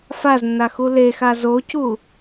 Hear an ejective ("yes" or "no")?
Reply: no